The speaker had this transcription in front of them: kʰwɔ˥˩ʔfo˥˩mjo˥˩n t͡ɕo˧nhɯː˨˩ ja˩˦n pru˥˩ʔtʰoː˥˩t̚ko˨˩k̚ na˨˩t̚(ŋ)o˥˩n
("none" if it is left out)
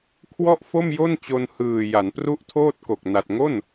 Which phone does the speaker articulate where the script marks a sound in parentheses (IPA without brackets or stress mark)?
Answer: ŋ